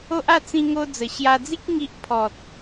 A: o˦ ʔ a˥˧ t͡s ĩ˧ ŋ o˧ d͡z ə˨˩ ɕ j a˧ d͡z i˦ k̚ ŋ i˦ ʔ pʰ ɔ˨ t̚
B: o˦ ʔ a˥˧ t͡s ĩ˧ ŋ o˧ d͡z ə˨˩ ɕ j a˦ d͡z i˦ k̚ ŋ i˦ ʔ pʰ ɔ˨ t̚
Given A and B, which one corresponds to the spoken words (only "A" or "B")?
A